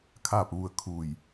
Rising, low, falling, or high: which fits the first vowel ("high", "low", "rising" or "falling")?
falling